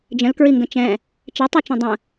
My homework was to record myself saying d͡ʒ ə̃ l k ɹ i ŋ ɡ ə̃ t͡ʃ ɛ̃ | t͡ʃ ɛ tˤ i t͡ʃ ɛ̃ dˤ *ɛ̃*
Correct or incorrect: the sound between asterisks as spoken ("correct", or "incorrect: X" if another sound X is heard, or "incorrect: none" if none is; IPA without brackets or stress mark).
incorrect: ə̃